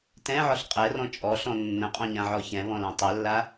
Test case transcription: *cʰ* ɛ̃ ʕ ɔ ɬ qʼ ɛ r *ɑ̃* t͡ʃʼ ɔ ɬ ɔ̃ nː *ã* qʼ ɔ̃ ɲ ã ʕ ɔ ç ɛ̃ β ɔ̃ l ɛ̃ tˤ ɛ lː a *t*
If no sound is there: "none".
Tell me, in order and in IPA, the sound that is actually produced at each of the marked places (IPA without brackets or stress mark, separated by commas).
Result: t, ɔ̃, ə̃, none